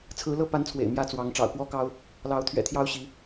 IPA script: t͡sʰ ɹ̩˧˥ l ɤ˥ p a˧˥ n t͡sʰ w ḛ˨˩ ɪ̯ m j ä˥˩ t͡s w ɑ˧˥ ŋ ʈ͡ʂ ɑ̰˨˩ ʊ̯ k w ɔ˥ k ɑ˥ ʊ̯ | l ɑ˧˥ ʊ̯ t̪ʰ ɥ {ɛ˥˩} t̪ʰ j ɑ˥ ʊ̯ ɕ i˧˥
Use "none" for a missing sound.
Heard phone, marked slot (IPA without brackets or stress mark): ɛ̰˨˩